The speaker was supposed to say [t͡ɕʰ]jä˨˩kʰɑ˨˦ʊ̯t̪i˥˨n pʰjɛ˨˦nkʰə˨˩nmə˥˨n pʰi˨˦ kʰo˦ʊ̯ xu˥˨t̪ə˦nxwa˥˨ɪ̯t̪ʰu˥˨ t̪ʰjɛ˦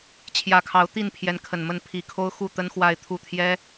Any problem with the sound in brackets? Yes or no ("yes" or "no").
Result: no